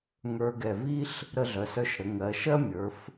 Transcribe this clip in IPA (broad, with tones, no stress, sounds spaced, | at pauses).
ŋ ə˞˧ ɡ ɛ˧˩ v i˥ ɬ | ɾ ə˧ ɮ œ˩˧ s œ˧ ʃ ɾ ə˩˧ ŋ ɜ˩˧ ʃ ɜ˥ mʲ ə˞˩˧ f